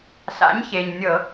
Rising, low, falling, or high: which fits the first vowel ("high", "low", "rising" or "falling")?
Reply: rising